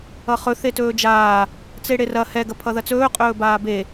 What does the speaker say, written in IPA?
ʌ χ ɵ θ e t ɵː d͡ʒ aː | t͡s e ɽ e r ɐ h ɛ ɡ ɐ pʰ ʌ ð ɐ t͡s ɵː qʼ ɵː b aː b e

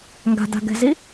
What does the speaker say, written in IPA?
ŋ ɡ a̤ d a̤ ɡ ɛ̤ z i

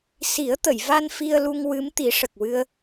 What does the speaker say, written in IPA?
s i˨˩˦ ə̯ t̪ ə˨˩˨ j v a˧ n f i˧ ə̯ l u˧ ŋ w ɨ˧˥ m t̪ i˨˩˦ ʂ ə˨˩ k̚ w ɨ˧ ə̯

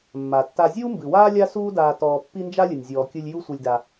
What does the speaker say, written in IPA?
mː a˩ tː a˨ zʲ uː˦ m b ɨ˩ w aː˥ lʲ a˦ s uː˦ d aː˨ t ɔː˨ pː i˦ n d͡ʒ a˥ lʲ ɨ˩ nʲ zʲ ɔː˩ kʲ ɨ˨ lʲ j u˦ sʷ ɨ˨ lʲ d a˨

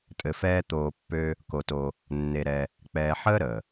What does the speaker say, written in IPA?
tʼ ɘ˧ f ɛː˦ t̪ oː˧ pː ø˧ | k o˧ t o˧ | nː e˧ ɾ ɛ˧ | k͡p ɛː˧ ħ əː˦ ɾ əː˨

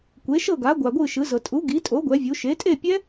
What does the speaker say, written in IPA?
kʷ e˩˥ ʃ ɤ˥˩ ɡ a˩˥ ɡʷ a˨ ɡʷ ɯ˥˩ ʃ ɯ˩˥ z ɤ˨ tʼ u˩˥ ɡ i˩˥ tʼ o˩˥ ɡʷ ɛ˩˥ vʲ u˩˥ ʃ e˩˥ tʼ e˥˩ pʲ ɛ˦˥

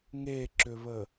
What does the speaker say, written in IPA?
ŋ e ǁ ʏ β ə

